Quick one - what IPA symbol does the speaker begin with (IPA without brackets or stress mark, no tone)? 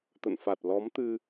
t̪